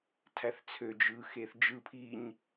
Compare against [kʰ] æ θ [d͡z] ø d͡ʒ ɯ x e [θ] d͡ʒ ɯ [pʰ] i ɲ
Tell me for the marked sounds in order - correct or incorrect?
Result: incorrect: tʰ, incorrect: t͡sʰ, correct, correct

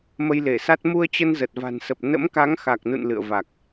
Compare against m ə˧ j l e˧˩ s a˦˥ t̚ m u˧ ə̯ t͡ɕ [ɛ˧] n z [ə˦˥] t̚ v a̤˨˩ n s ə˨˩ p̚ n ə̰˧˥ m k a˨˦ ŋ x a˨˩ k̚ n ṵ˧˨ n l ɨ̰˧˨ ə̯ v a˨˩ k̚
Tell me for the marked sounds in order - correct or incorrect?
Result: incorrect: ə˧, incorrect: ə˨˩

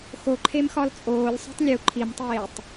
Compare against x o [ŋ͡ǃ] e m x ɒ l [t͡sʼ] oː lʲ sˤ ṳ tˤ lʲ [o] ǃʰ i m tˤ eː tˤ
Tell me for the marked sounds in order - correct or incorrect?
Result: incorrect: ǃʰ, correct, incorrect: u

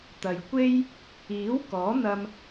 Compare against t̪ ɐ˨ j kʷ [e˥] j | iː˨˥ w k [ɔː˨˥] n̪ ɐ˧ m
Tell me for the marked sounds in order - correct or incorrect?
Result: correct, correct

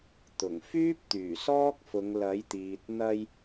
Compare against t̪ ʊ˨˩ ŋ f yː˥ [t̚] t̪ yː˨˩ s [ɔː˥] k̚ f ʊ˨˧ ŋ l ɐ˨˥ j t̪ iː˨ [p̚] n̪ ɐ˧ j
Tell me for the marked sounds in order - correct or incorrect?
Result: incorrect: p̚, correct, incorrect: t̚

